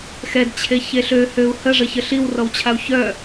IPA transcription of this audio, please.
x ɛ d t͡ɕʰ e ç e ɬ ø h ø u̯ h ə ʐ ə ç ə ɬ i w r ɔ w t͡ɕʰ a u̯ ç œ

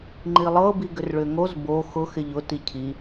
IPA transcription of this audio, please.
ŋ͡ǃ i lˠ ɤ b i ɡ ʏ r ɭ ʏ ŋ o z b o x ʊ x ɪ ʎ ʊ t i cʰ i

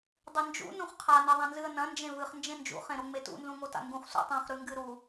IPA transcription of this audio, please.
dˤ ɨ n d͡ʒ ṵ n ũ χ qʰ a n e ðˤ ã n z ɨ ə̯ n ɐ̃ n d͡ʒ ẽ v ɨ χ n d͡ʒ ẽ n d͡ʒ ṵ χ ẽ ɾ o ŋ͡m e t ṵ n z ũ ŋ o t a̰ ŋ ɡ ũ χ s ṵ tˤ ã χ ɾ ʉ ŋ ɡ ɨ ɾ u

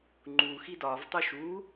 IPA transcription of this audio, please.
ŋ͡ǃ u x i d ɒ v tˤ u ʃ u

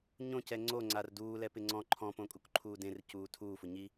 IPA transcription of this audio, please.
ɲ õ c ɛ ŋ͡ǀ o ŋ͡ǀ a r d uː l ɛ p ɪ ŋ͡ǀ ɔ̃ ǃʰ ɔ̃ p õ kʼ u k ǃʰ uː d ẽ r c uː tʰ uː f ʊ ɲ i

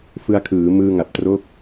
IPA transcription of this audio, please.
f ɯ˧ a̯ kʰ ɯː˩˦ m ɯː˧ ŋ a˨˩ p̚ t r o˦˥ k̚

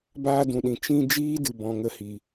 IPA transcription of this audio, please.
b aː˧ d ũ˨ ɗ ĩ˨ t͡ʃ ĩ˧ d͡ʒ iː˦ d ɨ˨ b ɔ̃˨ ŋ ə˦˨ h i˨

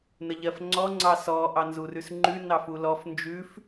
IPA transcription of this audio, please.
n ə ʎ ɜ f ŋ͡ǀ ɔ ŋ͡ǀ ɑ s ɔ ʔ ɑ n z u r ʉ s ŋ͡ǃ ʉ n ɑ f u l ɔ f n d͡ʒ ʉ f

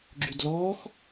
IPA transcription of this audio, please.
ɡ͡ǁ y d l ɔː x

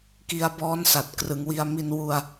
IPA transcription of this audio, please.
k i˧ a̯ b ɔː˦˥ n s a˨˩ t̚ k r ɯ˩˦ ŋ w i˧ a̯ m i˧ n w u˧ a̯

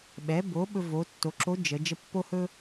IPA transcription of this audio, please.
ɓ ɛ˩˧ b o˩˧ ɓ ɵ˧ v o˩˧ tː o˩˧ ǁ o˧˥ d͡ʒ ə˩˧ d͡ʒ ə˧ pː o˥ h ɵ˥

